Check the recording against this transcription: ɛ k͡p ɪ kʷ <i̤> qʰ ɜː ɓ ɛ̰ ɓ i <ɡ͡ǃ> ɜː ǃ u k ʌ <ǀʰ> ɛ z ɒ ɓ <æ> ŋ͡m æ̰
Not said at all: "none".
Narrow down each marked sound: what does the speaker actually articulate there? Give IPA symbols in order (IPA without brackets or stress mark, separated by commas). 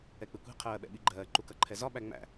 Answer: i̤, ɡ͡ǃ, ǃʰ, æ